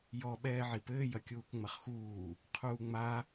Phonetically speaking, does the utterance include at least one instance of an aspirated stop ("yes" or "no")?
yes